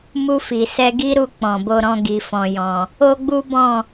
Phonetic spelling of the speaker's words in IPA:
mu˧fi˨sɛ˧ ɡi˦ɾu˧ k͡pɔ̃˨bo˧ɾɔ̃˧ ɡi˨fɔ̃˨jɔ̃˨ | o˦ɡ͡bu˦bɔ̃˦˨

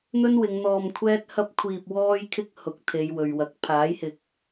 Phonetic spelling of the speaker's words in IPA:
n̪ɵ˥nwɪ˨˧ŋ n̪ɔː˧mkʷʰɛː˥t̚ hɐ˥p̚kʷʰiː˧p̚ wɔː˥jkʰɪ˥k̚ hʊ˨˥k̚ t̪ʰe˨˧jwɵ˨ɥwɐ˨˥k̚ pʰaː˨˥jhɪ˨k̚

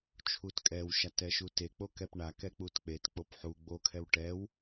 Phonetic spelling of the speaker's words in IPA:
t͡ʃʰutkʼɛw ʃatɛʃute k͡pokɛpɳa kɛk͡putk͡pet k͡popħu ɡ͡bo kʰɛwʈɛw

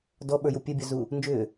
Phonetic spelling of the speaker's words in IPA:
dɔɓə˞ju pʲebʲœzu | nd͡ʒʏː

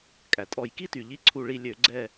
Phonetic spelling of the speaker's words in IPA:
kʼæ˩tʼɔ˧˩˧jki˥ty˩ ʎi˥ǀʰu˦˨ɭi˦˨ lʲø˧˩˧ɡ͡ǀɛ˦˨

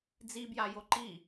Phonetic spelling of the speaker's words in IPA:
d͡zibja joǃi

